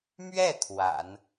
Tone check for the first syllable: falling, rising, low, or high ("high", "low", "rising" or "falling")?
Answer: falling